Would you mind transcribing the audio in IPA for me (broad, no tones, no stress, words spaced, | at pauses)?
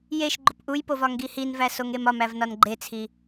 jeʃɡ͡ǃop ʔujpov ɒŋɡihinvæ soŋemɒmæv nɒnɡ͡ǃet͡sʰi